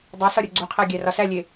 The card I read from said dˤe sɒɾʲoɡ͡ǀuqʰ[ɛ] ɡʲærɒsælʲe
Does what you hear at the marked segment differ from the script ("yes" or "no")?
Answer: yes